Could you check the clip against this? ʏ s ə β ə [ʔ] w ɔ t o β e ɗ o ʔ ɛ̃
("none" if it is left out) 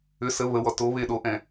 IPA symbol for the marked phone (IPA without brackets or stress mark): none